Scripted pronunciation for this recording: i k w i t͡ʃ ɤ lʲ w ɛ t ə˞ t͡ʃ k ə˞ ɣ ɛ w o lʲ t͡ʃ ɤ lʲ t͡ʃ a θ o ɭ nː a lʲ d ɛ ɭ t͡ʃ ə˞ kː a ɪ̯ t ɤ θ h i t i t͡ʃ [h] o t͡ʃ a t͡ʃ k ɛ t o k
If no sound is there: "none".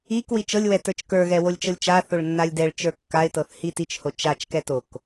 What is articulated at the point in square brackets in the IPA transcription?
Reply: h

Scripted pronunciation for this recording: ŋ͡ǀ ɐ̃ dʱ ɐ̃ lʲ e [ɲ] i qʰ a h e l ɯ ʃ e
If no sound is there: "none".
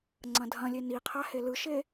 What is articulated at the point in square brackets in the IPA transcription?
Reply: n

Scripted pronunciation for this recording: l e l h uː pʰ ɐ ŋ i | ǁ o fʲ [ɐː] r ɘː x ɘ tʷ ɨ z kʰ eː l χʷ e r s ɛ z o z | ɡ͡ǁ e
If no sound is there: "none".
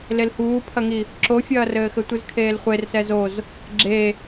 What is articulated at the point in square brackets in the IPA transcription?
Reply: ɐː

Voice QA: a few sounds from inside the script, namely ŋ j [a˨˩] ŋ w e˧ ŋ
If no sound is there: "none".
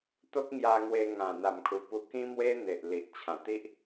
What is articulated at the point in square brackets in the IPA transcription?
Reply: a˧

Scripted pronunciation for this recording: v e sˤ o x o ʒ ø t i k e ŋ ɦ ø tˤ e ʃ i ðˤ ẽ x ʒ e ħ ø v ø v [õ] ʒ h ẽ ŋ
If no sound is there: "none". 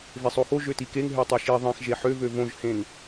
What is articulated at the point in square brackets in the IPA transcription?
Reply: õ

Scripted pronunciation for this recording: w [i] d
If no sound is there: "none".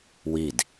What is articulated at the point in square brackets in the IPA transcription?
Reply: i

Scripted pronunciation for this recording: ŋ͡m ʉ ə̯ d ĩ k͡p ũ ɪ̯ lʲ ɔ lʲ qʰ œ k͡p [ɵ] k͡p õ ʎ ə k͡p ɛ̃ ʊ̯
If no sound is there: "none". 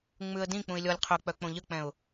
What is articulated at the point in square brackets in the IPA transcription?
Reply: œ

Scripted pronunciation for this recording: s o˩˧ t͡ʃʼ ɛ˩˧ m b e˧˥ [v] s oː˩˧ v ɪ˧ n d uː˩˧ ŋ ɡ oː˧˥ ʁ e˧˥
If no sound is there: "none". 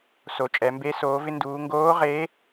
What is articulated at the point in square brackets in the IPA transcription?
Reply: none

